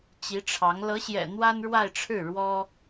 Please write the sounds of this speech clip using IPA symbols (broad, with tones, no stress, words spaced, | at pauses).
t͡ɕi˧˥ʈ͡ʂʰɑ˧˥ŋ lɤ˧˥ɕjɛ̰˨˩ n̪wa˥nɻwa˥˧ɪ̯ʈ͡ʂʰɻ̩˥˩ ɻwɔ˥